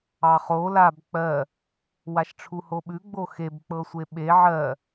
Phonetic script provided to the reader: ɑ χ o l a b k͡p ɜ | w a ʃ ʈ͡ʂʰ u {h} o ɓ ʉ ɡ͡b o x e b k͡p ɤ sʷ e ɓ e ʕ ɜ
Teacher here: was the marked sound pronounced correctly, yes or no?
yes